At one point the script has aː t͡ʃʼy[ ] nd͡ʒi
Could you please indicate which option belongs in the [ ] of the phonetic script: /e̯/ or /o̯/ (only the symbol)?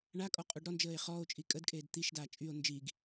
o̯